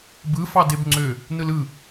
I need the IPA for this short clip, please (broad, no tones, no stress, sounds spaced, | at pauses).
b ɯ f ɑ d e b ŋ͡ǀ ø | n ɯ l ɯ